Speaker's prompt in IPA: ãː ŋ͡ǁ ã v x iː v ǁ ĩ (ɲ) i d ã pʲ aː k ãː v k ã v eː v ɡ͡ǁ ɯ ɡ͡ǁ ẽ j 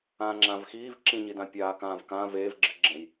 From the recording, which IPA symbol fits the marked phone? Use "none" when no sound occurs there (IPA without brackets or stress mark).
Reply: ɲ